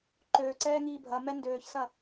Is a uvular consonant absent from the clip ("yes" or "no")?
yes